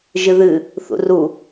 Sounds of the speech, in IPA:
ʒ ɨ ð ɨ | θ ṵ r u

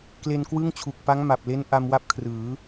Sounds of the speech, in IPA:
k l e˧ n k w ɯ˥˩ ŋ t͡ɕʰ u˨˩ k̚ p a˦˥ ŋ m a˨˩ p̚ l e˦˥ n ʔ a˧ m w a˦˥ p̚ kʰ r ɯː˩˦

